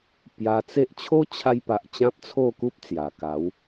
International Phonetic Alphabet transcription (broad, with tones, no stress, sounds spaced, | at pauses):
p j a˧ t͡s e˦ ʔ t͡ɕʰ o˦ t͡ɕʰ a˧ j p a˨ ʔ t͡ɕ ã˦ p̚ t͡sʰ o˥˧ k u˦ p̚ t͡s j a˨˩ k a˨˦ w